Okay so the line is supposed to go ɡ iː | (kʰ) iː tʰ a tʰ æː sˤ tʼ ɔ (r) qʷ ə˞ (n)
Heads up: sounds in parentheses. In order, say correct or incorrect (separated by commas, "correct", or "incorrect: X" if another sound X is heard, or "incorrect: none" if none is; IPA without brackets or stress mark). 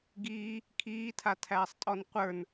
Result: correct, incorrect: n, correct